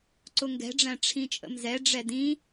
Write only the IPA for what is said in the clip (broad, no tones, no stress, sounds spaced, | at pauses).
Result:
ǀ ʊ ŋ ɡ ɛ̤ ɖ͡ʐ æ̃ ʈ͡ʂʰ ĩ t͡ʃʼ ə̰ m z ɛ ɖ͡ʐ ɛ d ĩ